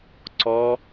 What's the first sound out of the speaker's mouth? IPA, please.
ǀ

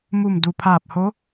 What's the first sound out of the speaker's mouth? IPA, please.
m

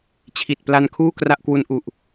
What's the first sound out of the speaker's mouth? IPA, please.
t͡ɕʰ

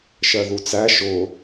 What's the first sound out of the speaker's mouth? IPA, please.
ʃ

